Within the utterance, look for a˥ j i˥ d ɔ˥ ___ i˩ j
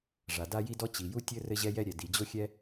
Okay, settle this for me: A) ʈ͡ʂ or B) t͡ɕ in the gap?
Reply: B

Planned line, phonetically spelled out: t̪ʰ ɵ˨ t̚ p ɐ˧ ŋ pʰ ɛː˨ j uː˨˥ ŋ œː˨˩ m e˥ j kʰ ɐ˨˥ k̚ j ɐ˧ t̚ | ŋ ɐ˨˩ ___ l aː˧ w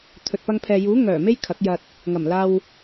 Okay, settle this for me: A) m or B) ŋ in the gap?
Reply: A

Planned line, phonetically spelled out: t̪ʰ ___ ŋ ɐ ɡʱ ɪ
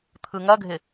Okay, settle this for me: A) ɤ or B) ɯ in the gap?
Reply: B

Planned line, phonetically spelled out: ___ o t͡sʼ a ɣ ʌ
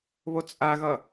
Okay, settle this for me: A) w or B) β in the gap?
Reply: B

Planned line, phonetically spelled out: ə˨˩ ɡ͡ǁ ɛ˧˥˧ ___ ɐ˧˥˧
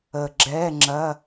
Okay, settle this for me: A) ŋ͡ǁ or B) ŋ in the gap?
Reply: A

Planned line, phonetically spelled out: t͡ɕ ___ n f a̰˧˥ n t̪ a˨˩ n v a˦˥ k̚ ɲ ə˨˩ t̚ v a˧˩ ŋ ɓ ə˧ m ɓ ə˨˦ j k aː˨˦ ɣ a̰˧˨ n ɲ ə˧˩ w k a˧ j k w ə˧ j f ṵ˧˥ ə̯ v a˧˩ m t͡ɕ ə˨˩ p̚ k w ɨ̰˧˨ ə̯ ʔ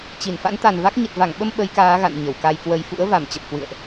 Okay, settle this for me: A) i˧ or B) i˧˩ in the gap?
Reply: B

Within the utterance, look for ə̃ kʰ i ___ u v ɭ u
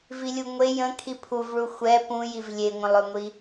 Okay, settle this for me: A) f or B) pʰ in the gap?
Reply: B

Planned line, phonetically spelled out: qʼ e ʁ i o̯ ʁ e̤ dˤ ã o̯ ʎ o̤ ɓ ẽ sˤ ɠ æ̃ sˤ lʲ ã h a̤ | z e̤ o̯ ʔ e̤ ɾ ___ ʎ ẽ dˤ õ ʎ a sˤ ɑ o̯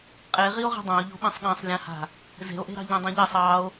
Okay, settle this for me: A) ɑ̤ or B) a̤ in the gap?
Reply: A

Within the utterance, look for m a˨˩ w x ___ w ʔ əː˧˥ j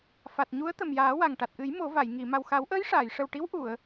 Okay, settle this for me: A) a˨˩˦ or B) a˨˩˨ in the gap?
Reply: A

